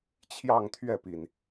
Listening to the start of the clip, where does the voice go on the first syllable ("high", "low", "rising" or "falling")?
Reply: falling